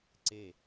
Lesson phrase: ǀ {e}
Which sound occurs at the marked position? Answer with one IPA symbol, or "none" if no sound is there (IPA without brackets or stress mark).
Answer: e